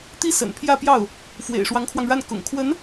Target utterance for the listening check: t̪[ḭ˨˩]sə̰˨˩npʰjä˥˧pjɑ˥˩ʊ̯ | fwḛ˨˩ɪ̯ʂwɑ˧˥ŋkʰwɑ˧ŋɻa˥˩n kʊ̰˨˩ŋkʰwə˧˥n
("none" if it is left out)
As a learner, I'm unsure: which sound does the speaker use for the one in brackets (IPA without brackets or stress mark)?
i˥